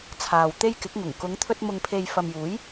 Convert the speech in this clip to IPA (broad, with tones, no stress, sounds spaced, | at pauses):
t͡sʰ aː˨ w t̪ e˥ j k ɪ˨˥ k̚ ŋ ʊ˨˩ ŋ k ʊ˨˧ ŋ t̪ʰ ɵ˧ t̚ m ʊ˨ ŋ pʰ e˨ j f ɐ˨ m j uː˨˥ j